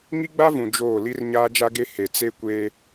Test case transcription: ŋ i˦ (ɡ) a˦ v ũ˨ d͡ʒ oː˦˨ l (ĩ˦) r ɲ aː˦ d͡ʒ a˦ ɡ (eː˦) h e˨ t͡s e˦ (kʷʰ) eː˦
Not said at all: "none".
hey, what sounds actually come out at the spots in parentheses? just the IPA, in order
ɡ͡b, i˦, e˦, kʷ

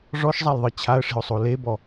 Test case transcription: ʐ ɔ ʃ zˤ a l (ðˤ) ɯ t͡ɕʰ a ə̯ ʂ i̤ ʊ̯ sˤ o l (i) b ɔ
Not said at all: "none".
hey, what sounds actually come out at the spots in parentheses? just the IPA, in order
ðˤ, e

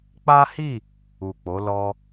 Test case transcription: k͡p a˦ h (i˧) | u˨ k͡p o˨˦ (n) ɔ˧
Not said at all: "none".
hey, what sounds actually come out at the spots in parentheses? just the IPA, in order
i˦˨, l

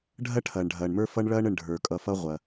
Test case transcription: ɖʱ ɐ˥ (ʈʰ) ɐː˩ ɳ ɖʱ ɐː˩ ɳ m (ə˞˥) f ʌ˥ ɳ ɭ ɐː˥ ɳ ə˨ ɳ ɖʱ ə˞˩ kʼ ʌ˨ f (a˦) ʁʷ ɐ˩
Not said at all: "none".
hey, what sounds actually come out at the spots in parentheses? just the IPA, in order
ʈʰ, ə˞˦, ʌ˦

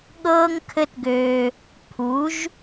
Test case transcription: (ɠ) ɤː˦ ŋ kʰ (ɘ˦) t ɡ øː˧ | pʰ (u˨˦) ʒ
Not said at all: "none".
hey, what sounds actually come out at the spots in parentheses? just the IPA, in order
ɠ, ɘ˦, u˨˦

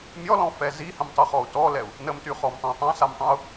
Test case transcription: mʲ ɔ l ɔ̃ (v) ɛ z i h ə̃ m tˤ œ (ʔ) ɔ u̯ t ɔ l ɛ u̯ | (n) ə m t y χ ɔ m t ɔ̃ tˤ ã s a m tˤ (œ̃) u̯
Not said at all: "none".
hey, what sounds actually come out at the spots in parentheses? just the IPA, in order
f, χ, n, œ̃

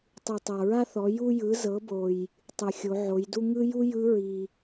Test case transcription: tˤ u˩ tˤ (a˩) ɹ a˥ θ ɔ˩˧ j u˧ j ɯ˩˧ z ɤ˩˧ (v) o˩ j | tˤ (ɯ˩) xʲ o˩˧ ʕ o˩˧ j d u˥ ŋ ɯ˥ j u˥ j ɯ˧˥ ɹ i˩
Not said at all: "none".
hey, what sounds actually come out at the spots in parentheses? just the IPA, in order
a˩, b, ɯ˩

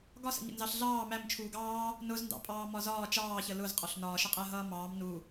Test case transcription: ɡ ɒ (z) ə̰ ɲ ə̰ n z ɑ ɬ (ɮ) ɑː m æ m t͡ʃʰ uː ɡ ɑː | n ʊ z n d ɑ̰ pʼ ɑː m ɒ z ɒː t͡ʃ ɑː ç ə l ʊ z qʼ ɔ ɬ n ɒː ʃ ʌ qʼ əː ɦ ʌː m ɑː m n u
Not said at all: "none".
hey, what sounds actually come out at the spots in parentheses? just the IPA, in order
s, ɮ

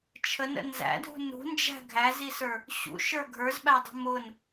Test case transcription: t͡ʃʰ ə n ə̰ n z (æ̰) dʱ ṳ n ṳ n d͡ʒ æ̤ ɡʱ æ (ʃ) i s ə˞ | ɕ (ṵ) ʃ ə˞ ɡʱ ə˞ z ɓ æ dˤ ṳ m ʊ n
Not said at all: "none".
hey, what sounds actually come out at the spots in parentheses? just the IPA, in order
æ̰, z, ṵ

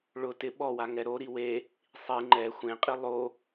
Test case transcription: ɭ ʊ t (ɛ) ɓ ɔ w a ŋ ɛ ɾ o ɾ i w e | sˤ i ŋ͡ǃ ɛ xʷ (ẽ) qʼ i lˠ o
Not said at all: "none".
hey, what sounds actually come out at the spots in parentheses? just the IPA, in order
ɪ, ẽ

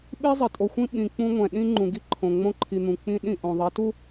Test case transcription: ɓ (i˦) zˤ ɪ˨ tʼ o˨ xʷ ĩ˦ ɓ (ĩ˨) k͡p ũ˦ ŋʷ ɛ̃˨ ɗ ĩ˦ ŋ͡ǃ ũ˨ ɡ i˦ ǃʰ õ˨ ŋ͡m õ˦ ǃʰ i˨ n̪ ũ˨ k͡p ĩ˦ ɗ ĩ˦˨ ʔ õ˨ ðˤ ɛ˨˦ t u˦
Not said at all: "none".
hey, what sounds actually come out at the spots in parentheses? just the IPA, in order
i˦, ĩ˨

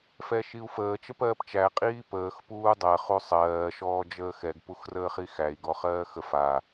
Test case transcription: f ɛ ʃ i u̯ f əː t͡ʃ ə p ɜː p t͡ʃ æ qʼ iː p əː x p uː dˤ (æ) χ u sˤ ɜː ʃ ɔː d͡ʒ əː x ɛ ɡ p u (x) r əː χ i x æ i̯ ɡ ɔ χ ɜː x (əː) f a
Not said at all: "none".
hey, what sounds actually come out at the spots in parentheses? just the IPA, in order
ɜ, x, ə

